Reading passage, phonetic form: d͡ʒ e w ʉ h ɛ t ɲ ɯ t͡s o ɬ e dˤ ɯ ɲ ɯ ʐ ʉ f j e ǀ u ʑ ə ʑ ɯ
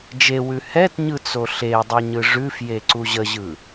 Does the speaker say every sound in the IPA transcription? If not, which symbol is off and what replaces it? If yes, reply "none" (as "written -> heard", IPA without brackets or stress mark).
none